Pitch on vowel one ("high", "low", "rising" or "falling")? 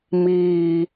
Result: low